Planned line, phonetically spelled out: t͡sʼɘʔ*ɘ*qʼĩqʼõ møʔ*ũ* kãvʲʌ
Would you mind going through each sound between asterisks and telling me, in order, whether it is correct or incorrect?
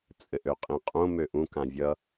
incorrect: ø, correct

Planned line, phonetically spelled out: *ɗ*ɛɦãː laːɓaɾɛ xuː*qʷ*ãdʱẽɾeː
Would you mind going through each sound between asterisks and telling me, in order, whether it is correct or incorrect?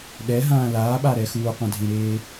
correct, correct

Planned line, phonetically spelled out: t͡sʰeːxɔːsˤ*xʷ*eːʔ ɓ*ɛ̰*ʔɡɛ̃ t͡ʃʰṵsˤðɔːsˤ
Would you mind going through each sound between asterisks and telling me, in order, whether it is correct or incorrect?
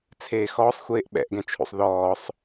correct, correct

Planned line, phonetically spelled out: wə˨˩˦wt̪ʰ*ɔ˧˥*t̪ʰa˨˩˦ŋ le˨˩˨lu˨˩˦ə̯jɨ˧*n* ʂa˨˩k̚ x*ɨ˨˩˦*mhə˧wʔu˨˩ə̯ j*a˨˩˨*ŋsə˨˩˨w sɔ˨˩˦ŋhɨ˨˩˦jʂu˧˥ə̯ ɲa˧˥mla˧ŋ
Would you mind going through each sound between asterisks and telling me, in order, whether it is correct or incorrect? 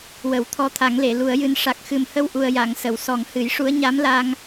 correct, correct, incorrect: ɨ˨˩, correct

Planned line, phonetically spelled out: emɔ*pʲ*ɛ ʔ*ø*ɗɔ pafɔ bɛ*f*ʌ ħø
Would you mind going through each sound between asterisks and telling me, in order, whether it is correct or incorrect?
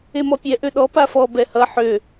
correct, correct, incorrect: h

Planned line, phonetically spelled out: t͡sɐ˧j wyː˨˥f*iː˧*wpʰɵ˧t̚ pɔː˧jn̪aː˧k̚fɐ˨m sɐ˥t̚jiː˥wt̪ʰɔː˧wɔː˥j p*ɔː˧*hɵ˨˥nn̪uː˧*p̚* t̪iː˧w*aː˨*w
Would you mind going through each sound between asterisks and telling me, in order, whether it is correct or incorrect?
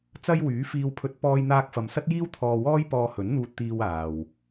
correct, correct, incorrect: t̚, correct

